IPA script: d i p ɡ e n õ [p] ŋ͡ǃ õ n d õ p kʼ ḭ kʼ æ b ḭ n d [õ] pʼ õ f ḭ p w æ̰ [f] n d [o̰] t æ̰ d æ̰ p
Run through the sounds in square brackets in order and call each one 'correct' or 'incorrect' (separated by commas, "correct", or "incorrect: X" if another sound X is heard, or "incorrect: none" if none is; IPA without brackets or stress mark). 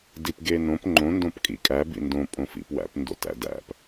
correct, correct, incorrect: p, correct